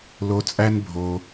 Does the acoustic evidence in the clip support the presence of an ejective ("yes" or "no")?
yes